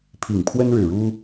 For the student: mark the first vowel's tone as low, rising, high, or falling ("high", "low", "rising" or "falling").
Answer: low